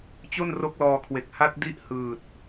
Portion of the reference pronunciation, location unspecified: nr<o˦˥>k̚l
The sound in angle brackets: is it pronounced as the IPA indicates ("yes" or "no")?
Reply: yes